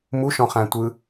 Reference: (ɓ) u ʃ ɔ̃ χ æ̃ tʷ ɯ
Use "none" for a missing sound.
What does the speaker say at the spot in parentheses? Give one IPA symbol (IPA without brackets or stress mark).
m